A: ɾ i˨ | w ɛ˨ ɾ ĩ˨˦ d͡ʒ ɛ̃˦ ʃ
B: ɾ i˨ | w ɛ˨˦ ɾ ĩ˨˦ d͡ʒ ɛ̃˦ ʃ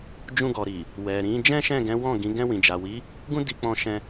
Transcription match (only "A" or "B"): A